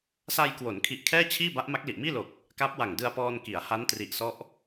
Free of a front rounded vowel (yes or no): yes